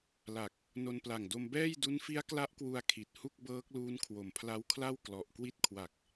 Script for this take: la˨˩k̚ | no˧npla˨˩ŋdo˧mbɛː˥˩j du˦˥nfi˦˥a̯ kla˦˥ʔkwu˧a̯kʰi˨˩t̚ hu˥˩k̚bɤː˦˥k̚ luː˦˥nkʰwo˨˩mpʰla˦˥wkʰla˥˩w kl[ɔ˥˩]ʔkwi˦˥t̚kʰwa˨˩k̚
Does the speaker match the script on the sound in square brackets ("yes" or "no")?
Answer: no